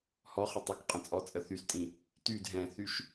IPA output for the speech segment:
h ɔ χ ə tˤ ə k qʼ ə̃ t͡sʼ ɔ t͡sʼ ə θ y s tʼ ĩ | t y d ɦ ɛ̃ θ y ʃ

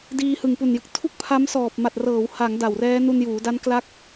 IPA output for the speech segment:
d iː˧ h ɯ˨˩ ŋ p u˨˩ n j ɯ˨˩ k̚ tʰ u˥˩ k̚ pʰ a˦˥ m s ɔː˨˩ p̚ m a˨˩ t̚ r ɤː˩˦ w h a˩˦ ŋ d a˨˩ w r ɛː˦˥ n u˧ n j uː˩˦ d a˦˥ n k l a˦˥ k̚

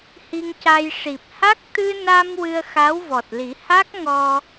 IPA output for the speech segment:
h i˧ ŋ c a˧ j ʂ i˨˩ p̚ h a˦˥ k̚ t̪ ɨ˧ n a˧ m w ɨ˧ ə̯ x a˧˥ w v ɔ˨˩ t̚ l i˨˩˦ h a˦˥ k̚ ŋ ɔ˧

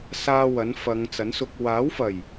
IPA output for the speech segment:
s aː˥ w ɐ˨˥ n f ɐ˨˧ ŋ t͡s ɐ˨˥ n s ʊ˧ k̚ w aː˨˥ w f ɐ˨˩ j

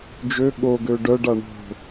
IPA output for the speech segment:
d͡ʒ ø ɠ o ɡ ø ɖ œ ɖ a ɳ o̤

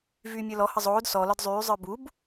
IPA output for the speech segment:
v yː mʲ ə˞ l ɔ h ə zˤ oː d s ɔ l ɒ d zˤ yː zˤ ə˞ b u b

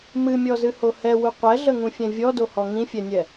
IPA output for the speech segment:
m ɨ mʲ ɔ z ɨ h o h ɛ w u qʷ ɛ ɮ ə ŋ ũ fʲ ɛ̃ vʲ ɔ d o h ɔ ŋ ĩ fʲ ɛ nʲ ɛ

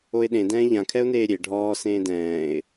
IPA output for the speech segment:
o ɪ̯ ɗ ẽ d ɛ̃ː ʎ ã kʰ ɛ ʊ̯ n eː ɾʲ e ɖʱ ɔː s ẽː d ɛ̃ː ɪ̯

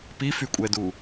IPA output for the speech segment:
p i f y kʷʼ ɛ d u

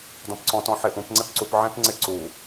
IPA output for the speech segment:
d ɔ̃ p ǀ ɔ̃ t ɔ̃ ħ ɪ ʔ ũ p ŋ͡ǀ e p ǀ u p ʕ ẽ p ŋ͡ǀ ɪ ǀ u

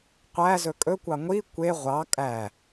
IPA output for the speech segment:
qʷ æ z ɵ kʼ ɵ kʷ ɑ ŋʷ i kʷ e ʁʷ ɑ kʼ æ

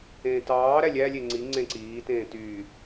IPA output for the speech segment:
ẽː t ɑː ɾ æ lʲ æ lʲ e ŋ͡ǀ i ŋ͡ǀ ẽ ǀ iː t ẽː t yː

